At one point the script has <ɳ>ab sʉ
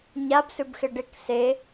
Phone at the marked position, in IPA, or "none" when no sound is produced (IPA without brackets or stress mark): ɲ